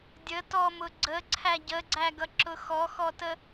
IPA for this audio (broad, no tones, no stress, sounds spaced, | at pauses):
dʲ ə t ɔ m ʊ ɡ͡ǀ ə ǀʰ æ ɟ ə ɡ͡ǀ æ ɡ ʌ ǁ ʊ x ɔ x ɔ t ə